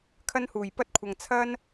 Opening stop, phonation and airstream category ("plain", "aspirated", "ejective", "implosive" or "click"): aspirated